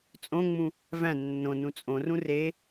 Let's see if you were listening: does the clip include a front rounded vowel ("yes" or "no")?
no